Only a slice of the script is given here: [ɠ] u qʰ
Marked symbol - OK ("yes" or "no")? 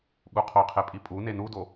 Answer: yes